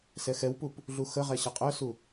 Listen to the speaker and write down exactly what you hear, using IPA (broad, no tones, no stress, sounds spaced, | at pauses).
s ɛ x ɛ w p u p | ɮ u x ə ʁ ɛ ɕ ʌ qʼ œ s u